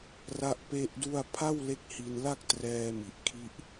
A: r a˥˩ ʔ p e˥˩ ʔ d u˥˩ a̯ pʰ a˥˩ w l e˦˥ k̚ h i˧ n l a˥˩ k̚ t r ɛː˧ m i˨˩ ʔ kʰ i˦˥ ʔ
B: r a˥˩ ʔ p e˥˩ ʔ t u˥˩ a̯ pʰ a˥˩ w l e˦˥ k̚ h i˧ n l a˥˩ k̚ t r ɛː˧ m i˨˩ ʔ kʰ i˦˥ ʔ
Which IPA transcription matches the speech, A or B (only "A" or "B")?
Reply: A